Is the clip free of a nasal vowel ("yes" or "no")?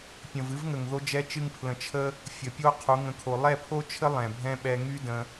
no